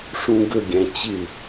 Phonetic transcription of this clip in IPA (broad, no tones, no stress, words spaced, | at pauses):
ʂũɡə ɡʲæ̃t͡ɕɪ